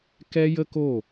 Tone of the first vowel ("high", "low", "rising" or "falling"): high